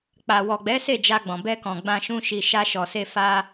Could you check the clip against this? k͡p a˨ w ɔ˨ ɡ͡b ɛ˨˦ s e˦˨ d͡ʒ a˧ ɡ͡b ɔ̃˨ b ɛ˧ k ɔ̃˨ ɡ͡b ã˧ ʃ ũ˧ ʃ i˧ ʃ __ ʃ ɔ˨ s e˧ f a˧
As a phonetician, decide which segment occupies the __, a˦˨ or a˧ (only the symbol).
a˧